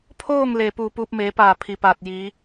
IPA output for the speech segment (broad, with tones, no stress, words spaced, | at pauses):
pʰoː˥˨ŋ leː˧˩puː˧˩puː˧p̚ meː˩˧paː˧˩ pʰi˩paː˧˩t̚ jiː˩˧